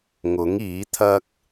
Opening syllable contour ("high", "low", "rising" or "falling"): rising